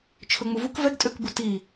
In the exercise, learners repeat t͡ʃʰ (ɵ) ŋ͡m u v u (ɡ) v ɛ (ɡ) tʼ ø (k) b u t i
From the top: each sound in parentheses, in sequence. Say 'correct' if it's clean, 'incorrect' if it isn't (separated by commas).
correct, incorrect, correct, correct